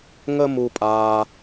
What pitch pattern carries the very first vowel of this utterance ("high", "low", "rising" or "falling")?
high